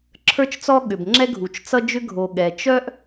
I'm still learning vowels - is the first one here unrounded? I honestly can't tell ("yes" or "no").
yes